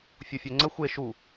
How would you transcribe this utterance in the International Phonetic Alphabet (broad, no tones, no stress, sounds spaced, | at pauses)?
fʲ u fʲ ø ŋ͡ǀ ə xʷ e ʃ u